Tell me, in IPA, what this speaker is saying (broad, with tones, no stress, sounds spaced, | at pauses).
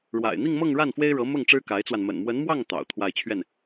ɻ w a̰˨˩ ɪ̯ n̪ i˥˧ ŋ m ɤ˥˧ ŋ ɻ a˥˩ n f w e˥ ɪ̯ ɻ ɤ˧˥ m ʊ˥˩ ŋ ʈ͡ʂ ɻ̩˥ k a˧˥ ɪ̯ t͡s w a˧ n m ə̰˨˩ n m w ə˧˥ n m w ɑ˥˩ ŋ t̪ ɑ̰˨˩ ʊ̯ t̪ʰ w a˥˧ ɪ̯ t͡ɕʰ ɥ ɛ˥˩ n